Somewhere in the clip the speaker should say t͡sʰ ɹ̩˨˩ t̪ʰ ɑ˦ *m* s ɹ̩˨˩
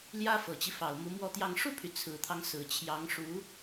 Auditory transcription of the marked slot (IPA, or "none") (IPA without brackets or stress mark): ŋ